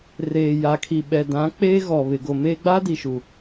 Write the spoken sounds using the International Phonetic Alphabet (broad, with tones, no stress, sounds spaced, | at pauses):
r eː˨ j aː˨ kʰ i˨ ɓ ɛ˨ d ã˨˦ k͡p eː˦ ɣ ɔ˨ β ɪ˨ ɡ o˨ m e˦ ɡ͡b a˦ d i˨ ʃ u˨